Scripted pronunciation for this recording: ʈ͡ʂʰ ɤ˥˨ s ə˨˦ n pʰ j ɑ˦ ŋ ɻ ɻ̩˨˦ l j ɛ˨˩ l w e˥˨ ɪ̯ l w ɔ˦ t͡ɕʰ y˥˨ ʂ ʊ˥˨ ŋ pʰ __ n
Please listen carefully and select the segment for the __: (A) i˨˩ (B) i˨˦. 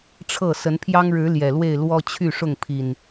A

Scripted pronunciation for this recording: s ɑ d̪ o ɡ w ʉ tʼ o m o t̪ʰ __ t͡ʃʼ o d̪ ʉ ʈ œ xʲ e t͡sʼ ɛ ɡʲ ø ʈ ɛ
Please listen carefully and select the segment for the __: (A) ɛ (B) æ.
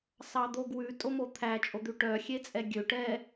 B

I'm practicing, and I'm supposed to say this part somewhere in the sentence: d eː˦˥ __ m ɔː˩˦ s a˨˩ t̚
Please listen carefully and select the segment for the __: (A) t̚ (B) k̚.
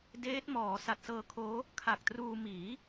A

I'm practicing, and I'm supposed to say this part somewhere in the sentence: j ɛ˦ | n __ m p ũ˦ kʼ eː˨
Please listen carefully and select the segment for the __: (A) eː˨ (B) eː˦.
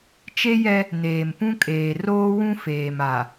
A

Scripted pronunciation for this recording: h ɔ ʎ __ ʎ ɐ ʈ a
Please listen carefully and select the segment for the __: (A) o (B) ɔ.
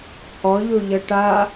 A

